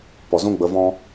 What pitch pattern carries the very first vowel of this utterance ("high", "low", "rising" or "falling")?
low